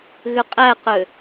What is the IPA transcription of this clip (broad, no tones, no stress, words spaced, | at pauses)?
ɣʏqʼæqø